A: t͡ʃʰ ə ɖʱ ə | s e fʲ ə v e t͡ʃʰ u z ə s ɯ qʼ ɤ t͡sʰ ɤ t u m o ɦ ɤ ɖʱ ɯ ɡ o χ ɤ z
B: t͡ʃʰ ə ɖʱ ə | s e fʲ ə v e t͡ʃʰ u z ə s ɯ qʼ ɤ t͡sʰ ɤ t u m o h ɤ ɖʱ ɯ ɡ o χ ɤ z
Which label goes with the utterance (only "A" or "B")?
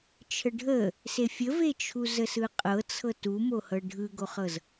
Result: B